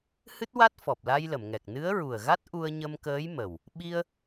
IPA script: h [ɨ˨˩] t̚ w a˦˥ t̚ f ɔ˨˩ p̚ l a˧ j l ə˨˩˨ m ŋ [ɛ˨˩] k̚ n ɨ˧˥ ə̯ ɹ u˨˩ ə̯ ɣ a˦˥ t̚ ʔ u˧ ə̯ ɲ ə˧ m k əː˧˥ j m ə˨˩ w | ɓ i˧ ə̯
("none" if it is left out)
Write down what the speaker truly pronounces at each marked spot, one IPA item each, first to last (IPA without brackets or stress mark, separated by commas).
ɨ˦˥, ɛ˨˩